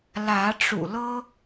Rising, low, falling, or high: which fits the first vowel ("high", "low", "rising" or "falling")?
rising